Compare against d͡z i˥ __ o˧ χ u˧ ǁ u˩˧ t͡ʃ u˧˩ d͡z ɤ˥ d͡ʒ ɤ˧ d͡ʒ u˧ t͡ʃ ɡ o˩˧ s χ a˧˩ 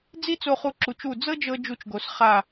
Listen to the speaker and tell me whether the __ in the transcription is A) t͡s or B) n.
A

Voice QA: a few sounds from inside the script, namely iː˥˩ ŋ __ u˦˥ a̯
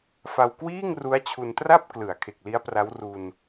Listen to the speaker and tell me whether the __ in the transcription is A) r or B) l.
A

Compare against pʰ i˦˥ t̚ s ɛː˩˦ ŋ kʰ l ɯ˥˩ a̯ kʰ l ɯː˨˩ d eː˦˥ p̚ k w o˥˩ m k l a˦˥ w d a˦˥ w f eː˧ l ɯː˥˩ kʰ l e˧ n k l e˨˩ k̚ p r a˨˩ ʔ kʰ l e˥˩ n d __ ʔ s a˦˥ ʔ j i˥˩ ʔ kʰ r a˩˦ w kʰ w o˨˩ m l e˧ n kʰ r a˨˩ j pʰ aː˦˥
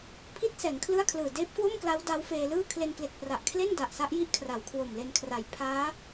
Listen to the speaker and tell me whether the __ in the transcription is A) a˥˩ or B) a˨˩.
B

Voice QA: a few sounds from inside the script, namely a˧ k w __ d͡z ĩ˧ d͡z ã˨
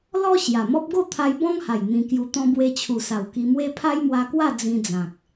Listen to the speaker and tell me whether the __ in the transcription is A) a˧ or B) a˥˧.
B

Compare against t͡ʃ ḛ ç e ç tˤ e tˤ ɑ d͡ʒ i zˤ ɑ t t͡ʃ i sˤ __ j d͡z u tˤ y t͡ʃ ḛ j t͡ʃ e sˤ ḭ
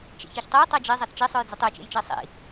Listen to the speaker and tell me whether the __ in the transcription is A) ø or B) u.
A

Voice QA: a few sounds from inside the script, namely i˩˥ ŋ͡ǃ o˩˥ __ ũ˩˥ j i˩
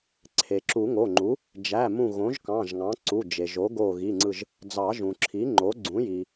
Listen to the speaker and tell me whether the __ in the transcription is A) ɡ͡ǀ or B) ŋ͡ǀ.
A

